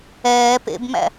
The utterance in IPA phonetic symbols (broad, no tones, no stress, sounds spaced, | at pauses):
ɛː p ḛ b m æ̰